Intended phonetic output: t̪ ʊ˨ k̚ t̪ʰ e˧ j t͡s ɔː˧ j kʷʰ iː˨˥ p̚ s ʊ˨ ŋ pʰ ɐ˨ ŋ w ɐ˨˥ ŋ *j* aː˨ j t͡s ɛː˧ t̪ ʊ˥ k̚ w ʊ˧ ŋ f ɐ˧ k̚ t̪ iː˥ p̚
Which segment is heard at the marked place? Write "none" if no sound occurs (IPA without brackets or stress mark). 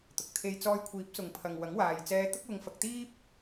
w